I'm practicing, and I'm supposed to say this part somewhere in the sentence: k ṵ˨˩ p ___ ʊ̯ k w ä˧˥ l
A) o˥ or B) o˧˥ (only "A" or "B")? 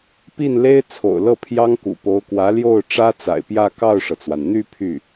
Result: B